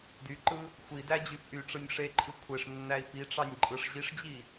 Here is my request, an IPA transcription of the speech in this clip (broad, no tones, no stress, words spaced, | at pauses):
dyǃɯ | xʷidæ d͡ʑyfʔyʈ͡ʂɯnʲ ʂeǃʰɯ kʷʰeʂnːæi̯ piʈ͡ʂɑnʲ ǃʼɯʂʑiʂd͡ʑi